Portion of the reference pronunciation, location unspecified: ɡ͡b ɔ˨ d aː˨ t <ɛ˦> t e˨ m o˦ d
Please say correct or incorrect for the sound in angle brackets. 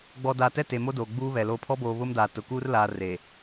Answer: correct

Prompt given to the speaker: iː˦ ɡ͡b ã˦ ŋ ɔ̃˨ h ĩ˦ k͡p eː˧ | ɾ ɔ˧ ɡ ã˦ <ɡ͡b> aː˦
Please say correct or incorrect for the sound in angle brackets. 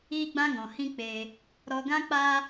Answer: incorrect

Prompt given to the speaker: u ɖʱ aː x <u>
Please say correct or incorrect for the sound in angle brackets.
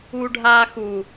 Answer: correct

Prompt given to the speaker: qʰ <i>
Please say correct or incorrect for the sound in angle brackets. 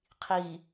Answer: correct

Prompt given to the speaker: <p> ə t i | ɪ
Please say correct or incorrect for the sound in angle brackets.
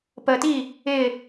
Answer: correct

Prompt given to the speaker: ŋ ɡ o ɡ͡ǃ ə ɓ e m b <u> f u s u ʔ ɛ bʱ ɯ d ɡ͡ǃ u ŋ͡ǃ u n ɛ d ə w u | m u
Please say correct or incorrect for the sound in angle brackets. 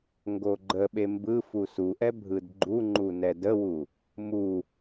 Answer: incorrect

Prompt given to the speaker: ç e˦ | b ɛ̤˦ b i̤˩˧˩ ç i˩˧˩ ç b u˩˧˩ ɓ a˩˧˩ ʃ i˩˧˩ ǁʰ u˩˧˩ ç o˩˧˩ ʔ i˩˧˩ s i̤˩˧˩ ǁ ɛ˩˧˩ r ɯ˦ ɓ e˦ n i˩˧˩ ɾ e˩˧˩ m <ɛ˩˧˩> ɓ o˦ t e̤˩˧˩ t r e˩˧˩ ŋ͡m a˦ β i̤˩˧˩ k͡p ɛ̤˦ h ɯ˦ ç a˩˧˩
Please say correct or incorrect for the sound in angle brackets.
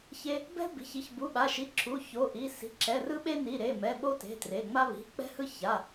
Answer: correct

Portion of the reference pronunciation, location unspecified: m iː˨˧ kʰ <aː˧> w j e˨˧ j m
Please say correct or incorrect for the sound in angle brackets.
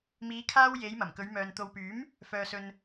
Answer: correct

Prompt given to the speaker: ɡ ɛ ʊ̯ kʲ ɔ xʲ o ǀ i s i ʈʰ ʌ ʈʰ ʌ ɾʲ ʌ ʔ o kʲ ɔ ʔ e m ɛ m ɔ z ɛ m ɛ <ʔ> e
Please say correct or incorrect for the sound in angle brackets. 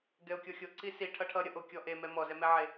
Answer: incorrect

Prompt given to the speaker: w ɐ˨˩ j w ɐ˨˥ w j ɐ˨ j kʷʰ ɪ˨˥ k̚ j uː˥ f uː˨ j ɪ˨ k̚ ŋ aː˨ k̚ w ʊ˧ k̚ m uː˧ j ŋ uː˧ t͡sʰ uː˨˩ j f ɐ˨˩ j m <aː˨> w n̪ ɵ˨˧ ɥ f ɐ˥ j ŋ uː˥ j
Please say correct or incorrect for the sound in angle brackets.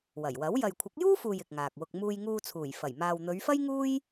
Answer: correct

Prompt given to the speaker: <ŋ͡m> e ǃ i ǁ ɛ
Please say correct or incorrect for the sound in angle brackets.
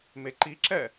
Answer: incorrect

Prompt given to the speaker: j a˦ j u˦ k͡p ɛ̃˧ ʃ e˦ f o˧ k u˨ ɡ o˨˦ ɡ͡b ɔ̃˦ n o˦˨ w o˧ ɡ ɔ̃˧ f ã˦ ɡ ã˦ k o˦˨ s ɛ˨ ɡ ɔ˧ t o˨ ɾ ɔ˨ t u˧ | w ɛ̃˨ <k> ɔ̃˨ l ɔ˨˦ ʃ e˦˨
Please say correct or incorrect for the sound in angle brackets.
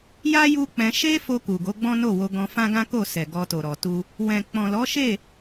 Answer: incorrect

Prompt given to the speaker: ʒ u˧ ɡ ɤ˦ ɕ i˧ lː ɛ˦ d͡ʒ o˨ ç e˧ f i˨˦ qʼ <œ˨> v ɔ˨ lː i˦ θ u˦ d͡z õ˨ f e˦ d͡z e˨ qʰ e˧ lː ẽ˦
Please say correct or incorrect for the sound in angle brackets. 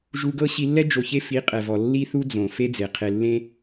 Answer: incorrect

